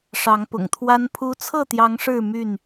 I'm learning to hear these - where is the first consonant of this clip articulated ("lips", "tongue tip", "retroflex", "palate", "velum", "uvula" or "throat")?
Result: retroflex